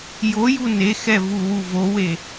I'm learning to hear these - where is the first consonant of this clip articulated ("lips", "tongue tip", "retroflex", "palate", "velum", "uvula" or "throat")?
palate